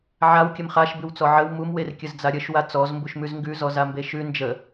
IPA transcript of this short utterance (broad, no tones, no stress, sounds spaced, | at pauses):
ʕ a w kʲ ə m χ a ʃ b ʉ w t͡s ɔ ʕ ə w m u m w e r kʲ ə z d͡z a ɾʲ ə ʃ w a t͡s ɔ z m b u ʃ m ʉ z ŋ ɡ ʉ z ɔ z a m b e ʃ ʉ n d͡ʒ ə